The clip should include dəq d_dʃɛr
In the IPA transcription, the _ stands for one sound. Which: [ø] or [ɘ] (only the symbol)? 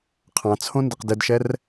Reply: ɘ